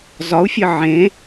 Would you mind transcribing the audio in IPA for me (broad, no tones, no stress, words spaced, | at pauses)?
zɒu̯fʲə ʕẽ